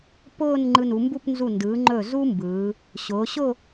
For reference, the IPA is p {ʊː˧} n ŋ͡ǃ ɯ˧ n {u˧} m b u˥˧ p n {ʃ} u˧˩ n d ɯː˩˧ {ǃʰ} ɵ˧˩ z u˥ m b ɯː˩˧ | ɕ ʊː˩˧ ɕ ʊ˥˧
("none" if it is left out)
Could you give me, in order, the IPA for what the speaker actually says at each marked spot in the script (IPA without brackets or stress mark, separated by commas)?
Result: ʊː˥˧, u˩˧, z, ŋ͡ǃ